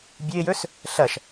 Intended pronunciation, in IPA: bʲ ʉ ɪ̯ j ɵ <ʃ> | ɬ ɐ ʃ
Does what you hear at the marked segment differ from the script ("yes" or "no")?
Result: yes